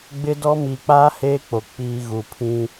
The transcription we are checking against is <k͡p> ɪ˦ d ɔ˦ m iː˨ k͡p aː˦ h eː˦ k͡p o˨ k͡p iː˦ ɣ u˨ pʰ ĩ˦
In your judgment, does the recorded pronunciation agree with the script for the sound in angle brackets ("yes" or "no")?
no